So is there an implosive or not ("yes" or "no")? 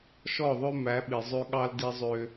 yes